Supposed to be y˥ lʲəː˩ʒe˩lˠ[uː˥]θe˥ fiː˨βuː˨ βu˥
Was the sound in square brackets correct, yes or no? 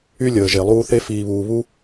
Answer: no